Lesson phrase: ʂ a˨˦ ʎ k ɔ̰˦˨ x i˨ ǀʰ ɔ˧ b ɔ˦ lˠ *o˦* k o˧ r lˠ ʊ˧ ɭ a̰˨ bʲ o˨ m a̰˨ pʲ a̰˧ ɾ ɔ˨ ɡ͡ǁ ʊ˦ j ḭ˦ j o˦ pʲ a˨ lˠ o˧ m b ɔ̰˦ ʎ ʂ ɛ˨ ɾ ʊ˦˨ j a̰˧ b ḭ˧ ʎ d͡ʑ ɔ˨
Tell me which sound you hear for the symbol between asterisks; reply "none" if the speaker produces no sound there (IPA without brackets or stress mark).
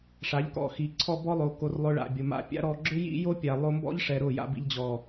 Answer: o˨